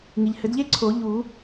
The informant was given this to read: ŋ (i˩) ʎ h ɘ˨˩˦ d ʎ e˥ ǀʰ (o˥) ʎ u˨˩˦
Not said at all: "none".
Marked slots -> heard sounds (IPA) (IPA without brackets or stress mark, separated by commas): i˩, o˨˩˦